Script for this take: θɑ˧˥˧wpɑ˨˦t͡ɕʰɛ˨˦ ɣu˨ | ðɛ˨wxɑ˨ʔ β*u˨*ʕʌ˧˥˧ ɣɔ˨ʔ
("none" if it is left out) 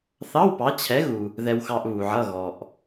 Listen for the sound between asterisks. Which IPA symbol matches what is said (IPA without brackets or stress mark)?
u˨